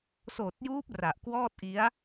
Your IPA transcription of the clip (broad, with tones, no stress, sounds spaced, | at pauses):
s oː˨˩ t̚ j uː˦˥ p̚ r a˨˩ ʔ k w ɔː˥˩ t̚ ʔ i˦˥ a̯